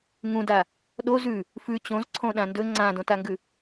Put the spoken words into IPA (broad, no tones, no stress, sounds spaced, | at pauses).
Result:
ŋ ũ d a | ɗ o z ʉ | f ʉ t͡ɕ õ z ǀʰ õ ɗ ã n d ɵ ŋ͡ǀ ã d õ t a ŋ ɡ ʉ